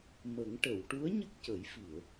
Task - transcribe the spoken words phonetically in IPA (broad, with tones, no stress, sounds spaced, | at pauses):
m ə˨˩˦ ŋ ʈ ə˨˩˨ w ʈ u˧˥ ə̯ ɲ ə˦˥ k̚ c ə˨˩˦ j f i˨˩˨ ə̯